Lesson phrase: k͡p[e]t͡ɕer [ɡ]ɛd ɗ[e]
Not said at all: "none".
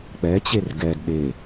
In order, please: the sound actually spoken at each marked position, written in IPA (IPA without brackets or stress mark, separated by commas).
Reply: ɛ, ɡ, e